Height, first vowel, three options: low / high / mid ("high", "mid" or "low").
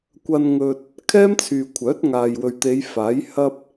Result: low